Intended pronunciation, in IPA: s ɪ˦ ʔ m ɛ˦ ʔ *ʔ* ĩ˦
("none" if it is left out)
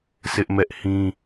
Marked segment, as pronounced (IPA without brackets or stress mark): h